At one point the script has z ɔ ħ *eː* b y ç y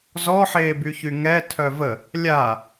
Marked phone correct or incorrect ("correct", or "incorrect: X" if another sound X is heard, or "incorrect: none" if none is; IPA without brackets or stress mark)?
correct